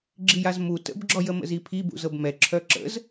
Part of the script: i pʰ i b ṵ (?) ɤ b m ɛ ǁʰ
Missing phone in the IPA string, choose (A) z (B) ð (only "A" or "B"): A